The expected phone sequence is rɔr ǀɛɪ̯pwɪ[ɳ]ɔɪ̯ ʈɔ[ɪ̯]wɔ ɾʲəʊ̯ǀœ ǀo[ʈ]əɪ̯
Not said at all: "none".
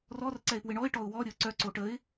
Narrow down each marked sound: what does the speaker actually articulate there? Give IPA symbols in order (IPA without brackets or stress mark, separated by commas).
ɳ, ʊ̯, ʈ